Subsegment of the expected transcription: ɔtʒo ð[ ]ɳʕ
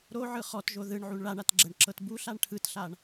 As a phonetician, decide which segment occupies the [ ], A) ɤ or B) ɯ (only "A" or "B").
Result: B